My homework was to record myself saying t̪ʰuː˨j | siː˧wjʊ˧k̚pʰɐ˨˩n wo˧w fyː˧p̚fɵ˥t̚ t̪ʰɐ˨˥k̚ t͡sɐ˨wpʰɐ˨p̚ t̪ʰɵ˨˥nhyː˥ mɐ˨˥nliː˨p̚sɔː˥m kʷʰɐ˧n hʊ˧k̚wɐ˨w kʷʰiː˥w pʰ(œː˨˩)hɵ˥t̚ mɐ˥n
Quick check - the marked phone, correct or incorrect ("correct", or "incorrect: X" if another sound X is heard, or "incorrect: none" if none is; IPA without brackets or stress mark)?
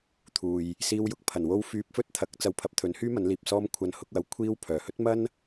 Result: correct